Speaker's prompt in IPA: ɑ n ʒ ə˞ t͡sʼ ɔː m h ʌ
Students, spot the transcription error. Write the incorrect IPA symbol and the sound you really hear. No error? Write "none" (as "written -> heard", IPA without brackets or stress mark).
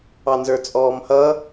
ʒ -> z